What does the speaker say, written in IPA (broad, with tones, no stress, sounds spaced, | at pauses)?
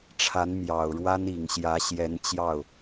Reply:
ʈ͡ʂʰ a˧˥ n m j ɑ˨˩ ʊ̯ ɻ w a˥ n i˨˩ ŋ ɕ j ä˧˥ ɕ j ɛ˧˥ n t͡ɕ j ɑ˥˩ ʊ̯